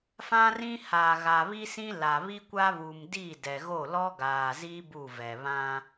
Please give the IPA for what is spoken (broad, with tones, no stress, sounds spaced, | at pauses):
f ã˦ r ĩ˦ h aː˨ ɣ a˨ β i˦ s ĩ˦ l a˨ β i˦ kʷ a˦ β u˨ m d i˦˨ d ɛ˨ ɣ o˦˨ l ɔ˦ ɡ aː˨ z i˦ b u˦˨ v ɛ˨ β ã˦